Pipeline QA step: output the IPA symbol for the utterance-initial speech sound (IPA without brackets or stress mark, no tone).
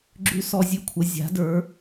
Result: ɡ͡ǁ